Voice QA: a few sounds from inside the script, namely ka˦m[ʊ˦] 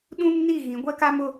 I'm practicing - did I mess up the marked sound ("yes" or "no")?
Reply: no